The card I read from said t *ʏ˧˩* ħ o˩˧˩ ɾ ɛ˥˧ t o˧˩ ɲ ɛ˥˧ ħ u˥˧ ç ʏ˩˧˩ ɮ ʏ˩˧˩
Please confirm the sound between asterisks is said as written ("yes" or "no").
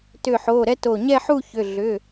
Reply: yes